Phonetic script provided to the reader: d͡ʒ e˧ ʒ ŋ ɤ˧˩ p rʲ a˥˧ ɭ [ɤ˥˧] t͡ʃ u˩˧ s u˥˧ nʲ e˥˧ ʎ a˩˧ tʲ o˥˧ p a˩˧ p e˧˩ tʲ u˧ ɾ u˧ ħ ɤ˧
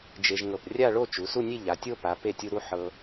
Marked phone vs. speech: incorrect: o˥˧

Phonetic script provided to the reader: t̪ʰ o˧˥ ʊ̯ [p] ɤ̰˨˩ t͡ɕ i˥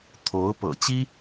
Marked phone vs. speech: correct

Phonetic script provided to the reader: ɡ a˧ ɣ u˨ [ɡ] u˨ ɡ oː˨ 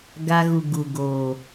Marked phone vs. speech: correct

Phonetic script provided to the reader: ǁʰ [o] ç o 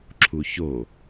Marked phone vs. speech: incorrect: u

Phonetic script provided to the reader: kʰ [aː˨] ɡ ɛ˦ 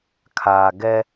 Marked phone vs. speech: correct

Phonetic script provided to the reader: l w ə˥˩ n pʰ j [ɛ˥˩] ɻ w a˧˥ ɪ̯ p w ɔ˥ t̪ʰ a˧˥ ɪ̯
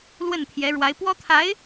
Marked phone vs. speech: incorrect: ɛ˧˥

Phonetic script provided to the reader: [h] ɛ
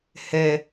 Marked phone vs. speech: correct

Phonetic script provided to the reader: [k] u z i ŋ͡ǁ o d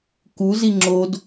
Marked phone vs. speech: correct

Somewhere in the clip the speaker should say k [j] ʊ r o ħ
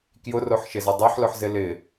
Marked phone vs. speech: correct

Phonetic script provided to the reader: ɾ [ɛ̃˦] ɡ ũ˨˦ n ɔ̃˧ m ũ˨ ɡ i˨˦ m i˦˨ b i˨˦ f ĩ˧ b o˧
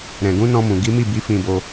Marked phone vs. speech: incorrect: ɛ̃˨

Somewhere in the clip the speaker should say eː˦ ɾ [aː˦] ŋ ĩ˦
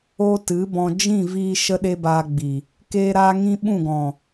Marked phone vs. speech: correct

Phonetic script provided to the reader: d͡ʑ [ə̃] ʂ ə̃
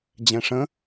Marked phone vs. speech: incorrect: ɛ̃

